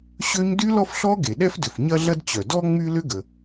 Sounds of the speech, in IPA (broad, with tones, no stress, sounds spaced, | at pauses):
ɕ ø˥ ɲ d y˥ l ɔ˥ f ɬ ɔ˥ ɡ e˩ ɗ ɛ˥ f d ʏ˩ f ɲ ɐ˥ ɮ ɐ˥ d t͡ɕ œ˩ d ɔ˥ ŋ͡m y˥ l ʏ˥ ɡ ə˩